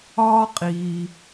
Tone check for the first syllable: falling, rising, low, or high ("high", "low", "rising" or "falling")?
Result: high